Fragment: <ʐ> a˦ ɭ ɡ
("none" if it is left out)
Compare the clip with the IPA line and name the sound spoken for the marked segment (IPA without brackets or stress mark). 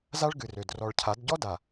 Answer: z